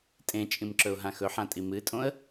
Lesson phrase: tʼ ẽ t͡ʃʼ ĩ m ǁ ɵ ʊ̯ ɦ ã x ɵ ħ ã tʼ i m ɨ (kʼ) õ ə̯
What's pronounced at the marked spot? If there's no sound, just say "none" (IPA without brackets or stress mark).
tʼ